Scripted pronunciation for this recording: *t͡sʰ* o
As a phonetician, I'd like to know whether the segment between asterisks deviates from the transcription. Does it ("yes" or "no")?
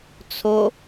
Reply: no